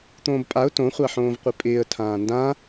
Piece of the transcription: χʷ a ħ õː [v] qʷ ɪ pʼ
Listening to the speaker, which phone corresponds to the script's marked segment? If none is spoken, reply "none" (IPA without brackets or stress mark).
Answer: v